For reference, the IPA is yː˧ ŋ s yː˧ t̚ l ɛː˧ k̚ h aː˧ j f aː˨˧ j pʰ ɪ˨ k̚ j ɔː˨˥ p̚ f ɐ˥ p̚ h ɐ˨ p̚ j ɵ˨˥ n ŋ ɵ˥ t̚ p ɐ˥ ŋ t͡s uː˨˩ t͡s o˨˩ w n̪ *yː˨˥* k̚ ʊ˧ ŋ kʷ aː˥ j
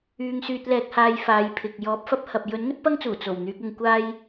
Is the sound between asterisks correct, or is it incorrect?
correct